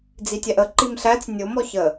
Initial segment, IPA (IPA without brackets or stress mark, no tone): d͡z